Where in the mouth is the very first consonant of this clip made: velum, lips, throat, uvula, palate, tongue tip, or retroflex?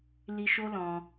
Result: tongue tip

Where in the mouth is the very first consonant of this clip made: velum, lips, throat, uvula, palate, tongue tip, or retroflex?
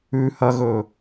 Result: throat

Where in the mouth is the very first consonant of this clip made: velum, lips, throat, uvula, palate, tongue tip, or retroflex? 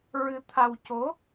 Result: tongue tip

